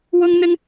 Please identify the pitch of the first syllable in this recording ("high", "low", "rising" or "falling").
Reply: high